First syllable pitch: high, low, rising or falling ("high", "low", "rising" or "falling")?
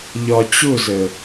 low